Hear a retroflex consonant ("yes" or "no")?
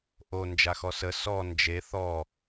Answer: no